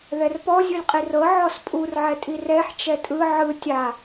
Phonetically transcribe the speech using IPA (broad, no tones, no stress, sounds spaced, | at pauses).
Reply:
ð ɛ r p ɔ zʲ ɯ lʲ qʼ i r ɤ ʕ ɔ s pʼ u r ʕ ɛ tʼ i r ɛ ħ t͡ʃ ɛ tʼ ɯ ʕ ɯ tʲ a